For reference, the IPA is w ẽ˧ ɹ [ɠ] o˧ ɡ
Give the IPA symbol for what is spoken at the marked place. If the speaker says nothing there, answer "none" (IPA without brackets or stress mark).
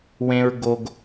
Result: ɡ